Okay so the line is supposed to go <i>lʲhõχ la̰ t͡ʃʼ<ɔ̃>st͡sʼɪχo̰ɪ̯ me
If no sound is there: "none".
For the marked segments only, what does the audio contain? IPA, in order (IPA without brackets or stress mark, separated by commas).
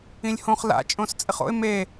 ĩ, õ